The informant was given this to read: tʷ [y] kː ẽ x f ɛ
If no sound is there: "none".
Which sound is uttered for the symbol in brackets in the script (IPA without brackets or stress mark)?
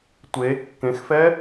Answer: e